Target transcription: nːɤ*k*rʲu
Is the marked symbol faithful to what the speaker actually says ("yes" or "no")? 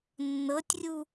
no